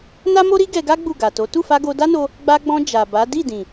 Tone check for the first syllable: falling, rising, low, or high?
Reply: high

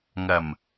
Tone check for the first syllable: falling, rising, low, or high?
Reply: low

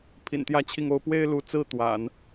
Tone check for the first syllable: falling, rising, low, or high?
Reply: low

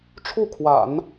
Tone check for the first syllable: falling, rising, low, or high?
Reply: falling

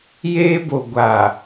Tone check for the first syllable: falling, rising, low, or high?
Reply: high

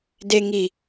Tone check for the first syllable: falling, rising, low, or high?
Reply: low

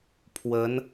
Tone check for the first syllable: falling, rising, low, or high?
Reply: rising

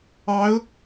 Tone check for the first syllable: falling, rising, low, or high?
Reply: rising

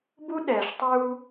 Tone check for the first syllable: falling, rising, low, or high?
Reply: high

